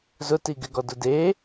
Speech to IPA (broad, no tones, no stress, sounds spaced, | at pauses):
z ʊ t i ɡ ɪ ɡ ɔ d ʊ d e